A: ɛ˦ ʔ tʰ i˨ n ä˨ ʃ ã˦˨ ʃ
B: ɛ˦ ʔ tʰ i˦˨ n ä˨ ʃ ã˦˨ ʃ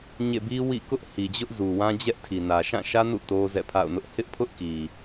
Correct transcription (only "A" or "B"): A